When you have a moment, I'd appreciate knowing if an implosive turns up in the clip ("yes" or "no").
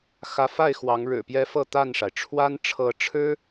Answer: no